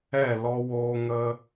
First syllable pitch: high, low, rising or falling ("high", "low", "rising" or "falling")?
falling